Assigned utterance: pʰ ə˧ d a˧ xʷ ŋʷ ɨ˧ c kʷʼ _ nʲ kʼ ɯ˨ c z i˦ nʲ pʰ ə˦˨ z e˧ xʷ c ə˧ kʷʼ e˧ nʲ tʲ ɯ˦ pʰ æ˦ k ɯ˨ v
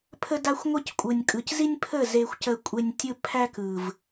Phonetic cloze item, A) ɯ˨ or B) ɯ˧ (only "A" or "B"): A